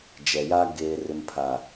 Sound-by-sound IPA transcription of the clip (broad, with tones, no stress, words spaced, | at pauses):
d͡ʒɛ˨ja˦ ɡeː˨rɪ˨mpʰa˨